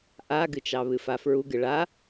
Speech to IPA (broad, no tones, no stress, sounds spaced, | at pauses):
ʔ a ɡ ɨ t͡ʃ ɑ β ɨ f a f ɹ u ɡ ɨ ɭ a